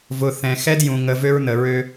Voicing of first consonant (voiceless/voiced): voiced